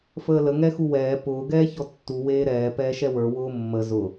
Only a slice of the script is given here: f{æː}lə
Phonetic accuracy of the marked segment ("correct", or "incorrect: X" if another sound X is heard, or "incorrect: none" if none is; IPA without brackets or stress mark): incorrect: əː